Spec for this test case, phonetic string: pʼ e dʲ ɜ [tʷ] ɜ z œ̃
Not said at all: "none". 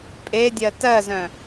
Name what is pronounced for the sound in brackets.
t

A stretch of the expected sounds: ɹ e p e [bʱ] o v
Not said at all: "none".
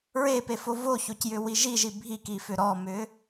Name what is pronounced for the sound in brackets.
f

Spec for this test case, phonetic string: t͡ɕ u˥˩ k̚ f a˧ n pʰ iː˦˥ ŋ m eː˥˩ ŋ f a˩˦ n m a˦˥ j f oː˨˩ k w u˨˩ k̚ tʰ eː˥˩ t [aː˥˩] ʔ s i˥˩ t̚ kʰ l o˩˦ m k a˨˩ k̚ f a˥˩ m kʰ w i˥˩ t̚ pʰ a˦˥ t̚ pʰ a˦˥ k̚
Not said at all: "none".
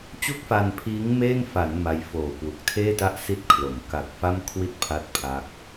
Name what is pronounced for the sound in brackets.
a˥˩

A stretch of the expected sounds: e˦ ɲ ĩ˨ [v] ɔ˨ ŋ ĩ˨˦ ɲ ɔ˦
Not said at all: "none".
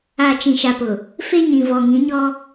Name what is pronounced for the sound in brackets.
v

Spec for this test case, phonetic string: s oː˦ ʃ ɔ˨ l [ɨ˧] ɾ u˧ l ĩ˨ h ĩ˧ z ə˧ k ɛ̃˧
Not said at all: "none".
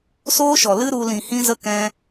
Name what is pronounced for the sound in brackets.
ɨ˦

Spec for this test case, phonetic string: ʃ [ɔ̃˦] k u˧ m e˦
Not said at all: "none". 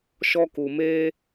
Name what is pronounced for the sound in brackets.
ɔ˦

